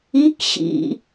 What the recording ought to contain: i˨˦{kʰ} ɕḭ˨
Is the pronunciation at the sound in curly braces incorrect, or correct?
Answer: incorrect